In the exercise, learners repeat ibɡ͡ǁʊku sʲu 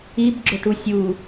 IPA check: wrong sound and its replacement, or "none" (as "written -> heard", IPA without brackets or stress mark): k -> ʈ